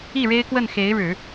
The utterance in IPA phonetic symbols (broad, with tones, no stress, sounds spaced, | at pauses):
i˥˩ ɻ e˥ ɪ̯ k w ə˥˩ n x e˧˥ ɪ̯ ɻ ɻ̩˨˩˦